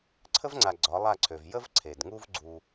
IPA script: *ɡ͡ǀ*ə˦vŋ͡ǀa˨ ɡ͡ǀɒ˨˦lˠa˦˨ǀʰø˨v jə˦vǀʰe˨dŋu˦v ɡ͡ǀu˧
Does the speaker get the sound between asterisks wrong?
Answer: yes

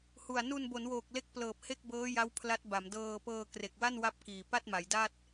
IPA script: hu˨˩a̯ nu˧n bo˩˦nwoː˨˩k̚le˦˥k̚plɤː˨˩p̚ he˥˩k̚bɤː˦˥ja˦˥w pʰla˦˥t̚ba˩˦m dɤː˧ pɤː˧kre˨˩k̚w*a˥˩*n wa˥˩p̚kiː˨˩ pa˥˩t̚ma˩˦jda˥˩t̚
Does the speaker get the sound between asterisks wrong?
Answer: no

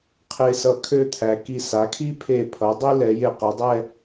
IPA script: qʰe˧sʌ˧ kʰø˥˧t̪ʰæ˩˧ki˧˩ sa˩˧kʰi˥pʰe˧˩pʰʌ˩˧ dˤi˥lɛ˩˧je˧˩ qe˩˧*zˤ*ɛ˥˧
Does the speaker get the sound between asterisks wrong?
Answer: yes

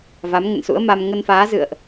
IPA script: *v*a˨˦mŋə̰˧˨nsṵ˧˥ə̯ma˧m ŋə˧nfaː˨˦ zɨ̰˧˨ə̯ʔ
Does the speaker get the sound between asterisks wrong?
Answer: no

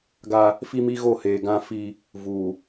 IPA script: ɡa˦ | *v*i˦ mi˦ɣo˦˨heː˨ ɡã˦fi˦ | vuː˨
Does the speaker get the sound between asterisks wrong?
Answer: yes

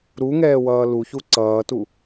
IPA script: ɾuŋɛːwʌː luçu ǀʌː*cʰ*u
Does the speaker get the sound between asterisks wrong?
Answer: yes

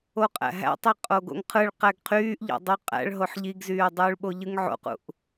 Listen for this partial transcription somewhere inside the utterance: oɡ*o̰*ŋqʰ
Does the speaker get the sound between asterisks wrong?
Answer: no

